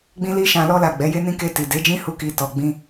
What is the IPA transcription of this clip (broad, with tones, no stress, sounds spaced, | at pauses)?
ɡ͡b ĩ˦ l i˦ ʃ ã˧ l ɔ˧ l a˨ ɡ͡b ɛ˨˦ j e˦ n ĩ˦ k e˧ t i˨ d e˨˦ d͡ʒ ĩ˦ h u˦ k i˧ t ɔ˨ ɡ͡b ĩ˧